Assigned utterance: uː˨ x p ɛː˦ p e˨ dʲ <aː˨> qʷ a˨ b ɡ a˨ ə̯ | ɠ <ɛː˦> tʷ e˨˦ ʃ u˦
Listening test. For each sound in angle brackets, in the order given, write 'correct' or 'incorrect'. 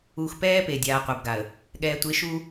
correct, incorrect: ɛː˨

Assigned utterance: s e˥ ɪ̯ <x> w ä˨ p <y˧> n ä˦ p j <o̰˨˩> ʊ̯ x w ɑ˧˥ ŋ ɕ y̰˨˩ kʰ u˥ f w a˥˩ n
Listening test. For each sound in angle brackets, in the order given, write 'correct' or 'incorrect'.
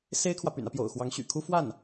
incorrect: kʰ, incorrect: y̰˨˩, correct

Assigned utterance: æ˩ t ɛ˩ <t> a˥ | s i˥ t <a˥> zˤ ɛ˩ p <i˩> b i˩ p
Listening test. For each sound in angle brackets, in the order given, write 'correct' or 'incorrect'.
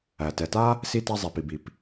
correct, correct, correct

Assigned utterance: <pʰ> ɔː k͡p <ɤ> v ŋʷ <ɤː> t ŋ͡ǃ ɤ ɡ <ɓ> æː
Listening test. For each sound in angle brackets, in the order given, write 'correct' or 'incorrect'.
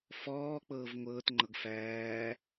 incorrect: f, incorrect: ɤː, correct, incorrect: f

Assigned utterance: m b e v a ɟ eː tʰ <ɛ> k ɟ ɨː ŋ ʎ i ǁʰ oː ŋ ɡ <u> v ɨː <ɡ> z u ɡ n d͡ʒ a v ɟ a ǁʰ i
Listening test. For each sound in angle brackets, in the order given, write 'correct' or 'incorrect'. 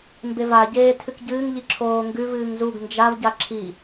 incorrect: ɨ, incorrect: ʉ, incorrect: ŋ

